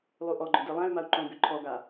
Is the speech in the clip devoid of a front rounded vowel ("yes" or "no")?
no